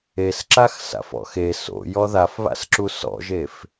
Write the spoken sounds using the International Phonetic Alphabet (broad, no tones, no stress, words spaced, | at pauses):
esǁax sa̰fɔ̰xe so̰ jɔðafβa̰sǁu sɔ̰ʒef